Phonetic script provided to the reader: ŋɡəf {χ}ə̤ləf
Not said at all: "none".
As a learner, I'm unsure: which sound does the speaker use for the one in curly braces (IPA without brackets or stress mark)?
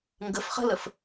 χ